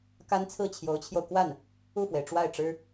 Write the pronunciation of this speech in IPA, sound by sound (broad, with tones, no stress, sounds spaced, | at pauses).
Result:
k a˥ n t͡sʰ ɹ̩˥˩ t͡ɕʰ j o˧˥ ʊ̯ t͡ɕʰ j o˧ ʊ̯ k w a˥˩ n | u˥˩ f w e˩ ɪ̯ ʈ͡ʂ w a˥˩ ɪ̯ ʈ͡ʂ ɻ̩˥